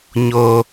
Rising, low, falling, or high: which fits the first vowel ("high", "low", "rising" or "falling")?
high